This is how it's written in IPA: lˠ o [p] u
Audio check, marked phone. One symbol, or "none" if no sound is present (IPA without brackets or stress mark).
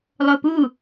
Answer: p